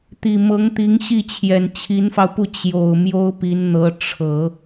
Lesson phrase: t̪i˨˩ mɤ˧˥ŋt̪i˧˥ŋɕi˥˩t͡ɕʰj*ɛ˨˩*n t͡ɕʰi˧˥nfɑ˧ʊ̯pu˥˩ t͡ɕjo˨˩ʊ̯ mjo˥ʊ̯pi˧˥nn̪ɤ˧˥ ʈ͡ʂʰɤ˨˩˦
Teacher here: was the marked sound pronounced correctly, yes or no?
yes